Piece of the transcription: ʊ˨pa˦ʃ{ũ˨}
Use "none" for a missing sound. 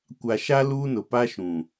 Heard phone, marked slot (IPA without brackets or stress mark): ũ˨